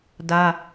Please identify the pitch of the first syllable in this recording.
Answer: high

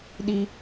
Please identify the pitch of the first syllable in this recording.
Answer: low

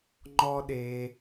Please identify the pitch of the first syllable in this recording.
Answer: high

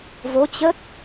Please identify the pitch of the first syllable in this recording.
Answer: rising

